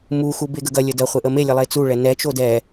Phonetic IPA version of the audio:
m u x u b e ɡ ə ɡ ɐ lʲ ə d ɐ χʷ e ʔ ə m e lʲ ə lˠ e t͡s u ɭ ɛ n ɛ t͡ʃ o d ɛ

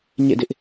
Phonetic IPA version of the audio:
ɲ ḛ˦˨ d ɪ˦ ʔ

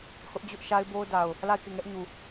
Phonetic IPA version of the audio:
h ʊ˦ ʔ d͡ʑ ʊ˦ ʔ ʃ a˦ ɪ̯ b o˦ ʊ̯ d a˨ ʊ̯ | l a˦˨ ɪ̯ k e˦˨ ŋ ɛ˦ ʔ ɲ u˨

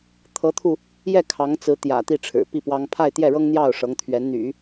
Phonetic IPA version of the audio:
t̪ʰ ɤ˧˥ t̪ʰ u˧ | j ɛ˥˩ kʰ ɑ˧˥ ŋ t͡s ɹ̩˧˥ t̪ j ä̰˨˩ t̪ i˥˩ ʈ͡ʂʰ ɻ̩˨˩ p i˥˩ p w ɑ˥ ŋ pʰ a˥˧ ɪ̯ t̪ j ɛ˥˩ ɻ ɤ˥ ŋ n̪ j ɑ˥˩ ʊ̯ ʂ ɤ˧˥ ŋ t̪ʰ ɥ ɛ˧˥ n n̪ y̰˨˩˦

